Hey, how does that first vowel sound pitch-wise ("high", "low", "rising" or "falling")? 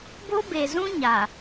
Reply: high